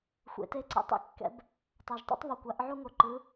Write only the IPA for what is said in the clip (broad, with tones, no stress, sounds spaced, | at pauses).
xʷ ḛ˩ t e˧ ǀ ɛ̰˩ tˤ ɛ̰˧ kː ɛ̰˩˧ b | tˤ a˩ ʒ tˤ o̰˥ tˤ β o˩ kʷ a˩˧ ʔ ʕ u˧ ŋ o˩ ǃ ɯ˩˧